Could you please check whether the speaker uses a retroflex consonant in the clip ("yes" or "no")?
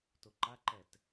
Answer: no